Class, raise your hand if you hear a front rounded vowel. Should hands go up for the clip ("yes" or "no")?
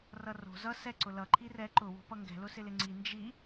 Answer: no